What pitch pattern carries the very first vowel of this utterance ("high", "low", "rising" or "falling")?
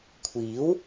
rising